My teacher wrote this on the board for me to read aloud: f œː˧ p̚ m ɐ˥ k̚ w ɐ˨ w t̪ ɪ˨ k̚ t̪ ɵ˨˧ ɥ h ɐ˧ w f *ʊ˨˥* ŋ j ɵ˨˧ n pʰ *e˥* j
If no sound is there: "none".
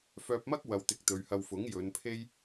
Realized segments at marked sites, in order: ʊ˨˥, e˥

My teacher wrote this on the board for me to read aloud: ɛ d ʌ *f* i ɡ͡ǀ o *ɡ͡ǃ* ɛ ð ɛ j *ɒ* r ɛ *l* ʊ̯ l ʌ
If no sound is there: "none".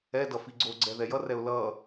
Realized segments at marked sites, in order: f, ɡ͡ǀ, ʌ, none

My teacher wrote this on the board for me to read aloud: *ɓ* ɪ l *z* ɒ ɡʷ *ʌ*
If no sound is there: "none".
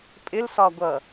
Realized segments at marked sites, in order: pʼ, s, ʌ

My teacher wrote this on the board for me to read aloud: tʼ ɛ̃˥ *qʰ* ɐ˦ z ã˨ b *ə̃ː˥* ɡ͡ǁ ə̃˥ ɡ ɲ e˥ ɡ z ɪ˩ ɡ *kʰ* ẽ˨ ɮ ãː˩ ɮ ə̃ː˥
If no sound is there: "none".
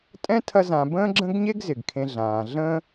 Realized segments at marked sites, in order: tʰ, ə̃ː˥, kʰ

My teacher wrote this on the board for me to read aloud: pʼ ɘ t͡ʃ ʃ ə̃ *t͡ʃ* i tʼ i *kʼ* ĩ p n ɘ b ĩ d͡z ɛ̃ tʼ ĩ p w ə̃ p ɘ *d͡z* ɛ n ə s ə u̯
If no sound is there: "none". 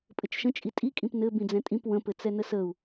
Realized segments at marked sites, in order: t͡ʃʼ, kʼ, t͡s

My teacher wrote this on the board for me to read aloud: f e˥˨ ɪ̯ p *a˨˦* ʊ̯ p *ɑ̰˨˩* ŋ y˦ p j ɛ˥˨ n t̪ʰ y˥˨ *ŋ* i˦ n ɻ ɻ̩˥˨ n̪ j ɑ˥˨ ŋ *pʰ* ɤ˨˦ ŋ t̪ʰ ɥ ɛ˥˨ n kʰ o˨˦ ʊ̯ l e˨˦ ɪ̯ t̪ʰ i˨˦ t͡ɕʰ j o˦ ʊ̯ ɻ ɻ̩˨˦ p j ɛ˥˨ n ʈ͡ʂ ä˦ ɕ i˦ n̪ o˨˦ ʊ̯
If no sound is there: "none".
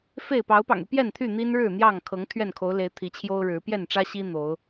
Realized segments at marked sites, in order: ɑ˨˦, ɑ̰˨˩, n̪, kʰ

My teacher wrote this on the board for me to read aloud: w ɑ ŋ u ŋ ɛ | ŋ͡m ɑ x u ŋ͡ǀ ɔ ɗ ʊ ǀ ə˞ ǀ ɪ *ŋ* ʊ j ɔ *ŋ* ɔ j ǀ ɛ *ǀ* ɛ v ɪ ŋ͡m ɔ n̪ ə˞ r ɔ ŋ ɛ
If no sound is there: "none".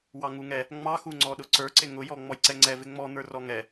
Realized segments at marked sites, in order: ŋ, ŋ͡m, ŋ͡ǀ

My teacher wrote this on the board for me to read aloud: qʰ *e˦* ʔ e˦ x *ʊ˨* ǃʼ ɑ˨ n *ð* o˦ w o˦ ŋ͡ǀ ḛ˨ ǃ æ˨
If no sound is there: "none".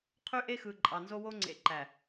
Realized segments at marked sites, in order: y˦, ɯ˨, z

